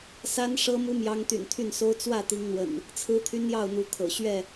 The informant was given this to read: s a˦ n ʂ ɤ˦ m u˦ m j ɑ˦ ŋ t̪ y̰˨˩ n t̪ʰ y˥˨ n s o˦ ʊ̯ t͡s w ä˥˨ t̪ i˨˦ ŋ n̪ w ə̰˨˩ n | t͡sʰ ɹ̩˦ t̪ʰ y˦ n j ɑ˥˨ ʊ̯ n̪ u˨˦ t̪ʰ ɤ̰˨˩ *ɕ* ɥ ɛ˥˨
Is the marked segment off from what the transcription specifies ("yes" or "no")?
no